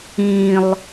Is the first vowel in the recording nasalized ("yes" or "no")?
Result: yes